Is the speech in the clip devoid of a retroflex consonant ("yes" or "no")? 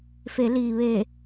yes